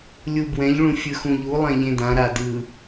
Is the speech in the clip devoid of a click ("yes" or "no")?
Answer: yes